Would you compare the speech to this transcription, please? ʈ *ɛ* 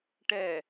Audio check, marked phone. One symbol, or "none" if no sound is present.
ɛ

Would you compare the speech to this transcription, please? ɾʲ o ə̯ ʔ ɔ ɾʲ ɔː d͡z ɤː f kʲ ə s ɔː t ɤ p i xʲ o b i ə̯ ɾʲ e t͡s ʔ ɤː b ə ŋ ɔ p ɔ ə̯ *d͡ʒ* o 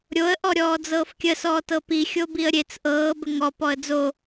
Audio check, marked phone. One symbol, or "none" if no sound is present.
d͡z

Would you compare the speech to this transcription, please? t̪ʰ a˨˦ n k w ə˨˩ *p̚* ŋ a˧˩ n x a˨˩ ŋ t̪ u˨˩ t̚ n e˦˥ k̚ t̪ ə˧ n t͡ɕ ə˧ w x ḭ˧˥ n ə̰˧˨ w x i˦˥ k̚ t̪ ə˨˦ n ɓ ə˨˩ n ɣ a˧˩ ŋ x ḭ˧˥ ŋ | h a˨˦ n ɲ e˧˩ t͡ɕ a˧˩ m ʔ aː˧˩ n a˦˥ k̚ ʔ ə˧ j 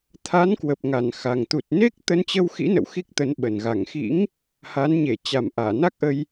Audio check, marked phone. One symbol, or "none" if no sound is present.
p̚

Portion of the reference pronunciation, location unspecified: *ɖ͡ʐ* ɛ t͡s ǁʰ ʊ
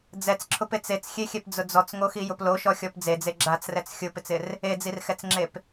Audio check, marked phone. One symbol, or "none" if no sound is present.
d͡z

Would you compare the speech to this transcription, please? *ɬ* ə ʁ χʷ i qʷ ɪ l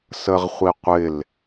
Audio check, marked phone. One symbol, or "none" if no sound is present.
s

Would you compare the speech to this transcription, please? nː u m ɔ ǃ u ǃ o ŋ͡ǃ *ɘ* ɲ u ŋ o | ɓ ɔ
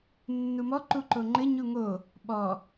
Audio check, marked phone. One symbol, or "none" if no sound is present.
ɘ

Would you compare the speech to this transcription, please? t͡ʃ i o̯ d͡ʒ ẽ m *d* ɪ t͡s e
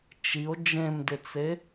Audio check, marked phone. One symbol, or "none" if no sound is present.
d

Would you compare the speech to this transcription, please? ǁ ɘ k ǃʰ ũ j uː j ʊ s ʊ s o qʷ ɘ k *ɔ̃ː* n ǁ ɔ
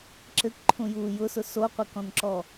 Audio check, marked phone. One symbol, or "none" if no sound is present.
ɔ̃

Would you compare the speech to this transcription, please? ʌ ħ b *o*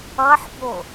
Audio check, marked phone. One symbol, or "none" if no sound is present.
o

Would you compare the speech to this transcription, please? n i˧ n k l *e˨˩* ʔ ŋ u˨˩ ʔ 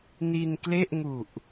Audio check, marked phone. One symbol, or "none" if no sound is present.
e˥˩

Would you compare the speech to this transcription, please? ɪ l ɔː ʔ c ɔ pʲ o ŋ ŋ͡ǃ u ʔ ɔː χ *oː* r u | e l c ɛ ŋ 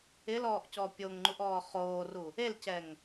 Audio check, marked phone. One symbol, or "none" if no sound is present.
oː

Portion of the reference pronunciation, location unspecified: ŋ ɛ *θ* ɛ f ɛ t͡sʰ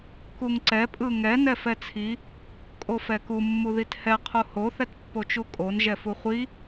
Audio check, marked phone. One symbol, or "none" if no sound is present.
n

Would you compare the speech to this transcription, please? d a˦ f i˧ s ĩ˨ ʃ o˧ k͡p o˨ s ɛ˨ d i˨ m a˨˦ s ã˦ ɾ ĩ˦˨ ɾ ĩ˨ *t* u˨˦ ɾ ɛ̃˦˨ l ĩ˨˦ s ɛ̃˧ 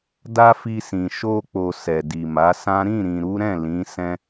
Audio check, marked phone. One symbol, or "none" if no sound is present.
ɾ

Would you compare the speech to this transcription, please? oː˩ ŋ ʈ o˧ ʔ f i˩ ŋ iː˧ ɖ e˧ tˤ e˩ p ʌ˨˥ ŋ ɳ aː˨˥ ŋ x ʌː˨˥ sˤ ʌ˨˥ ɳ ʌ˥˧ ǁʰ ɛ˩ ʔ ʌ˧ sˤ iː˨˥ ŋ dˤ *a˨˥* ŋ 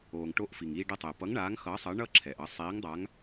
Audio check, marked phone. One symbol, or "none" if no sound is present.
a˨˥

